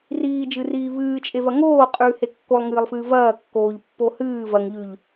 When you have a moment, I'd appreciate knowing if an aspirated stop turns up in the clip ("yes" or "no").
no